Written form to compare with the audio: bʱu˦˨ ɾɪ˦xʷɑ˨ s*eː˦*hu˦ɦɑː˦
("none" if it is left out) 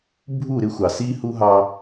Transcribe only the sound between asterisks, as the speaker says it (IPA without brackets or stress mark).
iː˦